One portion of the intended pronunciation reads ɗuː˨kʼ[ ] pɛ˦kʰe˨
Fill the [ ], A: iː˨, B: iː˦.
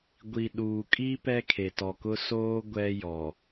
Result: B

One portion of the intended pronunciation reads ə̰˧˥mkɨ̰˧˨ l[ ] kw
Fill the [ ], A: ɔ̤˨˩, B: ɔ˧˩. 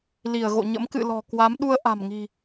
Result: A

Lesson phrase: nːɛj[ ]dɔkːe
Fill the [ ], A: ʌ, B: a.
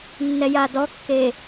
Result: B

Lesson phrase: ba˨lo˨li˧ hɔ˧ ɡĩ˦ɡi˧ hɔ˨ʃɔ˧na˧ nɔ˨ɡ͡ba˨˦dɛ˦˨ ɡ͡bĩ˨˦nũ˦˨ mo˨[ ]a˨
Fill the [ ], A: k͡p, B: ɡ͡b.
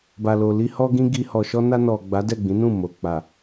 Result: A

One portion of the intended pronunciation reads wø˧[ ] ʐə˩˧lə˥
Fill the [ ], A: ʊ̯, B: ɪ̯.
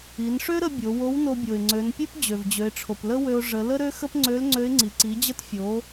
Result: A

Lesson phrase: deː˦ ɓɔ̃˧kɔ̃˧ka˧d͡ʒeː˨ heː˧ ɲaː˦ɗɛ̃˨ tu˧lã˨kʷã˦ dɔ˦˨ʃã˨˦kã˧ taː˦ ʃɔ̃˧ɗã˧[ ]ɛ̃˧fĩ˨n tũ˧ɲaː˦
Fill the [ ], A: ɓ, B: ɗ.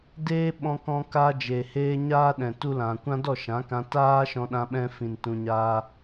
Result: A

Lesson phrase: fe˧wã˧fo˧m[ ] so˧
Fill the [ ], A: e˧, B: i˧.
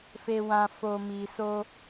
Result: B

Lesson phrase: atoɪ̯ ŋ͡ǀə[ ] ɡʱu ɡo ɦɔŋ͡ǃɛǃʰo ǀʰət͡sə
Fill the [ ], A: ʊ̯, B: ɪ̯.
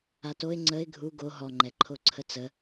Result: B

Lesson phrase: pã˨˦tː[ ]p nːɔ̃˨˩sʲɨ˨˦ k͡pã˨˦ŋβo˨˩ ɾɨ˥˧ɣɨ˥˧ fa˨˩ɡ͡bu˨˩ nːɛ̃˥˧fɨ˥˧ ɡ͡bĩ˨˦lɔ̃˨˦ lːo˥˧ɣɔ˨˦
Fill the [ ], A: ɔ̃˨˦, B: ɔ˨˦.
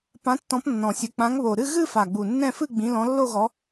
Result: A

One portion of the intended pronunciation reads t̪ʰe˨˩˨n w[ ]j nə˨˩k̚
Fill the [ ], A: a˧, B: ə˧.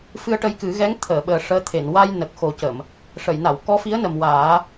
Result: A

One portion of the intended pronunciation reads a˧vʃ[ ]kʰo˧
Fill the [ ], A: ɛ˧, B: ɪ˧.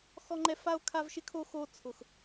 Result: B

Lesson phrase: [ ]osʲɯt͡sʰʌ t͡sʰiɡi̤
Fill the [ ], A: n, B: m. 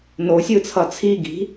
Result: A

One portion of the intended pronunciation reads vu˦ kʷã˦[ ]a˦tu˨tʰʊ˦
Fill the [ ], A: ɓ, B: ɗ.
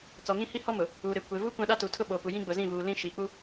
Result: B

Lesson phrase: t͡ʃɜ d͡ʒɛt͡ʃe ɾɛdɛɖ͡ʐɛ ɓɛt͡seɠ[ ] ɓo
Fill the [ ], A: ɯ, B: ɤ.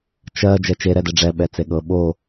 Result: B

